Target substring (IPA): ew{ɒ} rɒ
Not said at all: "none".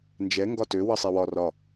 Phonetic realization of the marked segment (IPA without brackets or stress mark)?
ɒ